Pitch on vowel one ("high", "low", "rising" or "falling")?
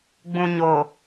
low